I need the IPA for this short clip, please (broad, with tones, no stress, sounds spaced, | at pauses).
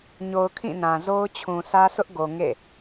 ɲ o˨ ʊ̯ kʰ ĩ˦˨ n ã˨ z o˦ ʊ̯ t͡ɕʰ ũ˨ sʰ ä˦ sʰ ʊ˦ ʔ ɡ o˨ ŋ ḛ˦˨